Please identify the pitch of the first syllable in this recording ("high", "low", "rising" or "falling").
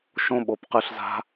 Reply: high